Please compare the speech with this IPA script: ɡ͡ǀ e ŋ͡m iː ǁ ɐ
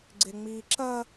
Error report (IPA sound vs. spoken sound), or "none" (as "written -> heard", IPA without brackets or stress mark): none